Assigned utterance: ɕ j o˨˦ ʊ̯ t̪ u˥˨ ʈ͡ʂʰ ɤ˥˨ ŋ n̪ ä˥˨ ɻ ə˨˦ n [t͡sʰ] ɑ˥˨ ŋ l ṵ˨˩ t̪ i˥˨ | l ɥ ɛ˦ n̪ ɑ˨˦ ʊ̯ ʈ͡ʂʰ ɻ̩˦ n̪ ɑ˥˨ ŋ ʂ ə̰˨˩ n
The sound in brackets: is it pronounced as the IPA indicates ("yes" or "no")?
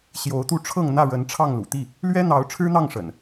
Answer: no